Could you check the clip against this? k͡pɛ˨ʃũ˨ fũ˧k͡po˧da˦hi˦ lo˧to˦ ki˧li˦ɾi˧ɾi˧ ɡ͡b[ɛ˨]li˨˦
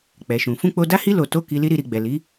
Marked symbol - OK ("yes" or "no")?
yes